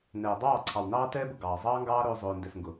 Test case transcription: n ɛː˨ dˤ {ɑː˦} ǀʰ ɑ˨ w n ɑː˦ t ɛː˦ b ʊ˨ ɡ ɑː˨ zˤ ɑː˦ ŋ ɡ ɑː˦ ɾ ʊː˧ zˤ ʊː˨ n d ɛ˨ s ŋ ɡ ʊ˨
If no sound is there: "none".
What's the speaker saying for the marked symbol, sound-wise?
ɑː˦˨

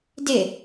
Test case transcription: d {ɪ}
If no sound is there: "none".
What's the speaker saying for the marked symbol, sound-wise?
ɪ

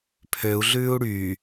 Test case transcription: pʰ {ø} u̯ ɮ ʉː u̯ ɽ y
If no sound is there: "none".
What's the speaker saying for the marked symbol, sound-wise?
ø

